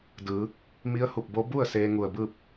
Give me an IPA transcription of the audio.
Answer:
d ɯː˩˧ | m i˧˥ ə̯ h u˧˩ p̚ b o˧˥ b u˥˨ ə̯ s eː˧ ŋ u˧˩ ə̯ b ɯː˥˨ p̚

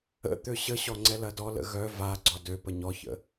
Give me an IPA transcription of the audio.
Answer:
ə̰ t̪ ø ɕ ə ɕ ɔ ŋ͡ǀ ɛ l ɐ d ɔ l ə̰ ɣ œ v a ɡ͡ǀ ɔ d ø p ə ɲ ɔ ç ə̰

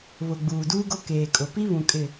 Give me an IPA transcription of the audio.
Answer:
β ʊ˨ ɡ͡b uː˨ d uː˦ ɡ o˦ k eː˨ kʼ ʊ˨ p i˦ β ũ˨ kʼ ɪ˨

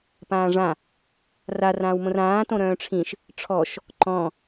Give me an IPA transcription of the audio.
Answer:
p ãː ʐ ã | r a r ãː w m õ r ãː t õ ɾ œ̃ː ʈ͡ʂʰ ĩ ʃ | ʈ͡ʂʰ ɔ ʃ | ǃ ɔ̃

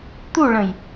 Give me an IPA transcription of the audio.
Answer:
t̪ u ɭ ə̃ j

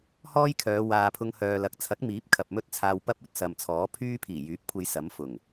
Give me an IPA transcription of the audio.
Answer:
h ɔː˥ j kʰ œː˨˧ w aː˨ pʰ ʊ˧ ŋ h œː˨ l ɐ˨˥ k̚ t͡sʰ ɐ˨˥ k̚ m iː˨˥ p̚ kʰ ɐ˨ p̚ m ɵ˥ t̚ t͡sʰ aː˧ w p ɐ˥ p̚ ɵ˨˥ t̚ s ɐ˨ m t͡sʰ ɔː˨˥ pʰ yː˥ pʰ iː˨˩ j yː˨˥ p̚ kʷʰ e˧ j s ɐ˨˥ m f ʊ˨˩ ŋ

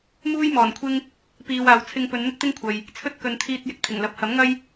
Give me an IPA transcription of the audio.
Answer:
m uː˥ j m ɔː˨˩ n kʷʰ ɪ˥ ŋ | p iː˨ w aː˨ w t͡sʰ ɪ˧ ŋ p ɵ˨˧ n n̪ ɪ˥ k̚ t̪ ɪ˥ ŋ kʷʰ ɐ˨ j | t͡sʰ ɵ˧ t̚ k ɵ˨ n t̪ʰ iː˧ t̚ j ɪ˧ k̚ t̪ʰ ɪ˨˩ ŋ l ɐ˨˥ p̚ h ɐ˨˥ m ŋ ɐ˥ j

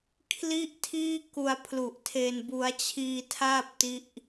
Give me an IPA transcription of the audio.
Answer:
kʰ l i˥˩ ʔ tʰ iː˥˩ k u˧ a̯ pʰ l u˨˩ ʔ tʰ e˧ n b u˦˥ a̯ t͡ɕʰ iː˧ tʰ aː˥˩ p̚ t i˥˩ ʔ

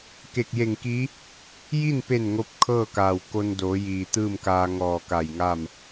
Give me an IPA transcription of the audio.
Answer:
k e˧˩ k̚ j e˧˩ ŋ k i˧˥ | j i˥˨ n p e˧˩ n ŋ o˧˥ p̚ kʰ ɤː˥˨ k aː˩ w k o˧ n d oː˩˧ j iː˩ t̪ ɯː˥˨ m k aː˧ ŋ ɔː˧˩ k a˧˩ j ŋ a˥˨ m

